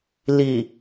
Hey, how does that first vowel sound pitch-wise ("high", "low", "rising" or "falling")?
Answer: low